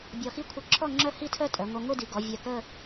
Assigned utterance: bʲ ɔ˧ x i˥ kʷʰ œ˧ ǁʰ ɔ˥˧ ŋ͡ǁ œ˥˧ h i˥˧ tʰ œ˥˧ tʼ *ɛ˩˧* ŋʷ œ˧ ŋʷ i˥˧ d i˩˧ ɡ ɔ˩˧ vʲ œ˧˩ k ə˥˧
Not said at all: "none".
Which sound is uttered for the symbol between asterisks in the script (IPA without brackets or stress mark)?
œ˩˧